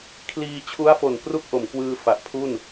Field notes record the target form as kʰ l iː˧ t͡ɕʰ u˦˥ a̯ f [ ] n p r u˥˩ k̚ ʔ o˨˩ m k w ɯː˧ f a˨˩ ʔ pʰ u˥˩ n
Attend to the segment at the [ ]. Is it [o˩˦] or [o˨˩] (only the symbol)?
o˨˩